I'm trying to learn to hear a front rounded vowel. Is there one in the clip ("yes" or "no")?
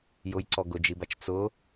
no